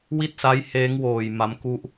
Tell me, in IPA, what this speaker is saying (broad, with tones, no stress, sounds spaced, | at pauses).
w i˥˩ t̚ s a˦˥ j h eː˦˥ ŋ w oː˨˩ j m a˦˥ m k u˥˩ ʔ